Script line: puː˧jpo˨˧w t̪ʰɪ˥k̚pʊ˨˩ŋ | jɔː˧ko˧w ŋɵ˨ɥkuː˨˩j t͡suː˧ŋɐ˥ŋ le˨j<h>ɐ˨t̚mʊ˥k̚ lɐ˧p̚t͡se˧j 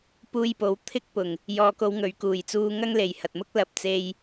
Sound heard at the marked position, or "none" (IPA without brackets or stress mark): h